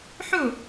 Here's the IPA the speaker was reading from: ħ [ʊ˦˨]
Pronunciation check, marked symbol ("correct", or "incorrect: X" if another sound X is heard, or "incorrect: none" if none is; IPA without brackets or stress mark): correct